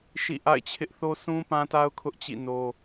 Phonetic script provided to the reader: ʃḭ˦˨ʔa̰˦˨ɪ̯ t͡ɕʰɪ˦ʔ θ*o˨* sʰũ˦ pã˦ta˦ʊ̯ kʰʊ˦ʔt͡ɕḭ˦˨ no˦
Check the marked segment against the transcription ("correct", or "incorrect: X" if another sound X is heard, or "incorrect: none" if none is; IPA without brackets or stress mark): incorrect: o˦